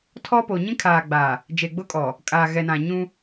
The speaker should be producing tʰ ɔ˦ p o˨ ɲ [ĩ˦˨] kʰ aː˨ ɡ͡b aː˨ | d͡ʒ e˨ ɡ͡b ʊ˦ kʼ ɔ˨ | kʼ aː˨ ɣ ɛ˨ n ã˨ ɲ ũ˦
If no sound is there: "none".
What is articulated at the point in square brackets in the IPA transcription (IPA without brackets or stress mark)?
ĩ˦